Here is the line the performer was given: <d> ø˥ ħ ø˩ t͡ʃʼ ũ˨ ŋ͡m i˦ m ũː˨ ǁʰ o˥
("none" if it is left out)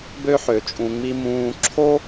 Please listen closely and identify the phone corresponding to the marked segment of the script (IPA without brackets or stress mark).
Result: b